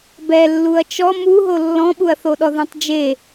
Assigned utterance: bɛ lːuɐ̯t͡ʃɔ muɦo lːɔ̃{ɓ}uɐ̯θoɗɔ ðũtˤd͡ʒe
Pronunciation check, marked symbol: correct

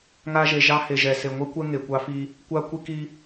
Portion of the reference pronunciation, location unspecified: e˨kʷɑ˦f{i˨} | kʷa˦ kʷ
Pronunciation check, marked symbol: incorrect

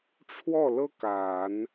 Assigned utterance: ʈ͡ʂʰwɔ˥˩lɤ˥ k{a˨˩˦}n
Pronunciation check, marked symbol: correct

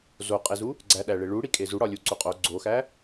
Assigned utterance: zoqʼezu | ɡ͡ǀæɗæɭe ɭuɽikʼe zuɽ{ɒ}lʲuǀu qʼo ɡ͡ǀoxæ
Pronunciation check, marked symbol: correct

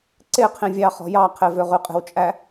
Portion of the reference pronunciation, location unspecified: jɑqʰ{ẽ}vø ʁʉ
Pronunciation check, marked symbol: incorrect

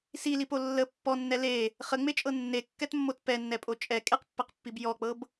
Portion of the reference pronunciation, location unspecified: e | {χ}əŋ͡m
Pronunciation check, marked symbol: correct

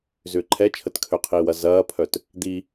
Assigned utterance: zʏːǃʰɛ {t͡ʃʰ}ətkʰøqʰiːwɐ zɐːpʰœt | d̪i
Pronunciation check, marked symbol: correct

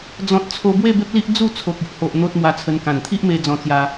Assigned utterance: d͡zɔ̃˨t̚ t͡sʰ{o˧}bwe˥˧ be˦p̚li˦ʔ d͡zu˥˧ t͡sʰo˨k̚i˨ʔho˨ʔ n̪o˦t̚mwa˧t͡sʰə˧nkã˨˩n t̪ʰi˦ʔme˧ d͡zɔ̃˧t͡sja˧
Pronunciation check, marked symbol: correct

